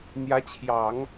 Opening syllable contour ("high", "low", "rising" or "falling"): rising